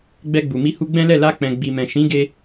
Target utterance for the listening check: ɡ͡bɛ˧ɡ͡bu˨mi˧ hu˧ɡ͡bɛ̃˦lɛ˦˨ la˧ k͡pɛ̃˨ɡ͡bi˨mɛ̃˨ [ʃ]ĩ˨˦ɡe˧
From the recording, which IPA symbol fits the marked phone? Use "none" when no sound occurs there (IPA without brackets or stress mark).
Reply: ʃ